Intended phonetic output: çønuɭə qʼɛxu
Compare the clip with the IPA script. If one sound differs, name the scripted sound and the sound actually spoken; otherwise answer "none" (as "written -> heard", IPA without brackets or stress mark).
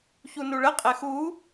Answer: ø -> u